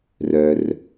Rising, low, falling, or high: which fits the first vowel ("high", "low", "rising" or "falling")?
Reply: high